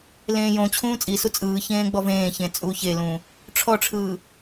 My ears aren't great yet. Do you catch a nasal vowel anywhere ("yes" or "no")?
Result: yes